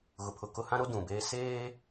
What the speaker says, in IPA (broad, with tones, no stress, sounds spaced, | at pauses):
ɣ ʊ˨ pʰ ʊ˨ k ʊ˦ h ã˦ ɾ o˦ d ũ˨ b eː˦ s eː˦